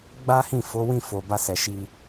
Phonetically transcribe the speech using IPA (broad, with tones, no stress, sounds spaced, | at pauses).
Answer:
ɡ͡b a˦ h ĩ˦˨ f o˨˦ w ĩ˦˨ f o˨ b a˧ s ɛ˨ ʃ i˧